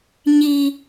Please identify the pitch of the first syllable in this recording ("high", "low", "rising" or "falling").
high